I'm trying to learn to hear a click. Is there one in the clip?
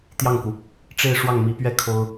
no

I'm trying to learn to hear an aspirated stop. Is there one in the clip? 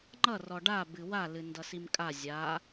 no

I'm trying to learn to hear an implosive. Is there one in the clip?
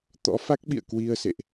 yes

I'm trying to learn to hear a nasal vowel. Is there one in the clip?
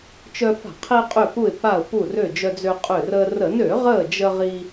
no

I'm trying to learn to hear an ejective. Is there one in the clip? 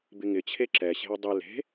no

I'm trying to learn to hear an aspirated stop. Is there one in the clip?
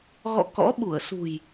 no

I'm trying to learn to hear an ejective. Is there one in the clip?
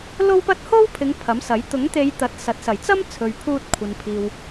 no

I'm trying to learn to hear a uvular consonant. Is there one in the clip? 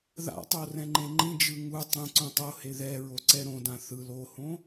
no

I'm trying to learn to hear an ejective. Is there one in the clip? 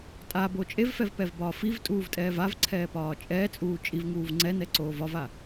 yes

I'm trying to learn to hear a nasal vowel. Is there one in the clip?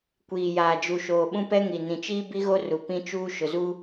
yes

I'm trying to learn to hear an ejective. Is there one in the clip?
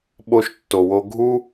no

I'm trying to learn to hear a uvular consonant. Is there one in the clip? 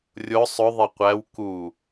yes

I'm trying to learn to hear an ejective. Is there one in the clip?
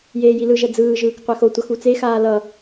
no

